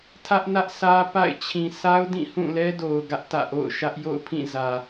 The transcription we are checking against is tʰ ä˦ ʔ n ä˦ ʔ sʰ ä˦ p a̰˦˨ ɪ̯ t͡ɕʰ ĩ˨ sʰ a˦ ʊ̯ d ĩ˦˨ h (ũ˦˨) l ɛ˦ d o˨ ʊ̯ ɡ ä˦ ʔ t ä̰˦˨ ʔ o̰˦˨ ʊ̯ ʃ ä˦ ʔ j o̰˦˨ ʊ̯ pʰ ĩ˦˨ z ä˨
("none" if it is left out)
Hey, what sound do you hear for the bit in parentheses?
ũ˦˨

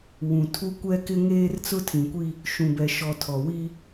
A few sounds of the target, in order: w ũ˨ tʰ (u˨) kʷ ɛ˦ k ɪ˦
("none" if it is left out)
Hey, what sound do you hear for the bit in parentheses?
u˦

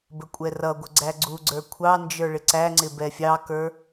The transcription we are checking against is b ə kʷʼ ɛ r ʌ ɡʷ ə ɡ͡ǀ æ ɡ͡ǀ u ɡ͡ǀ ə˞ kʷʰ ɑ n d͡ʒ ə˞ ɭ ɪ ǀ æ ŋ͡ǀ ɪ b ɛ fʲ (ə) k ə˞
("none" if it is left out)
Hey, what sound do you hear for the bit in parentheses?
ɑ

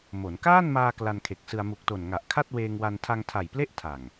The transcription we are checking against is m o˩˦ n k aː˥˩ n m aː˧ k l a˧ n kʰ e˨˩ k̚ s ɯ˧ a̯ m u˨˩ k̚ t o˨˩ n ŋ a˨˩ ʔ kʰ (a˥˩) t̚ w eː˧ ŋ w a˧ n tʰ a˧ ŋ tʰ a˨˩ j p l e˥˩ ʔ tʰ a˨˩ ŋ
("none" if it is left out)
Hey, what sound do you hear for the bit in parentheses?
a˥˩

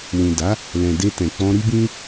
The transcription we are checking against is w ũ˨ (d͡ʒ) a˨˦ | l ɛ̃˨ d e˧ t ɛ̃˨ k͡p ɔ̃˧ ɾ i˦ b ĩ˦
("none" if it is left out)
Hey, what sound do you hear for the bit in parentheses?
d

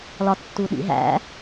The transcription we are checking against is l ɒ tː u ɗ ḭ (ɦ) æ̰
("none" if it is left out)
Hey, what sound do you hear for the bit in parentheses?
ɦ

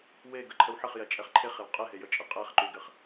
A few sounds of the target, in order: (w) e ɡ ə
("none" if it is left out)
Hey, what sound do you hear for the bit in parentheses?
w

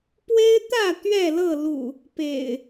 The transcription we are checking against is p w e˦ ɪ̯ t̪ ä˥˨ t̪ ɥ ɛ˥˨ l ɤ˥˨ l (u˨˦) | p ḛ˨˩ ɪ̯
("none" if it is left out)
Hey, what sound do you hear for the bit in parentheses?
ṵ˨˩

